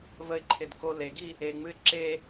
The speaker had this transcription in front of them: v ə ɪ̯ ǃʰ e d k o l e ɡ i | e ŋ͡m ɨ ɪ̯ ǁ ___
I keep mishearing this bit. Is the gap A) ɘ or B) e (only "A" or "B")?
B